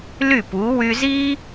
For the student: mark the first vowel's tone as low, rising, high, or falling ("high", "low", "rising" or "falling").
falling